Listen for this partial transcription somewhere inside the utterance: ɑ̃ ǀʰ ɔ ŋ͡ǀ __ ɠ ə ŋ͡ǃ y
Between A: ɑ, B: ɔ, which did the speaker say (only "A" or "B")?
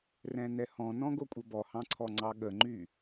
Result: A